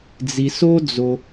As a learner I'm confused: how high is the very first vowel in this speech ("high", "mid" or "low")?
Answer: high